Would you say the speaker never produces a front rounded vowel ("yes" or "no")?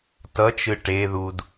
yes